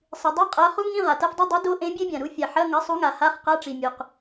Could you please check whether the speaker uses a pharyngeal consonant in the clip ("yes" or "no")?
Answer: yes